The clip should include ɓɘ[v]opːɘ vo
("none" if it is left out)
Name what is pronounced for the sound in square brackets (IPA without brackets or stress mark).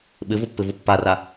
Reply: v